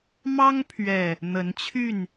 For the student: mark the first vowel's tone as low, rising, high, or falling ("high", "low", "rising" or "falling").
high